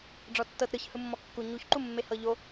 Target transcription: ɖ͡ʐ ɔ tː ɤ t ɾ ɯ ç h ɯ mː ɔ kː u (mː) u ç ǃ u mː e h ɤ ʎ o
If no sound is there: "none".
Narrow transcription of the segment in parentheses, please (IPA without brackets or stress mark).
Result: ɲ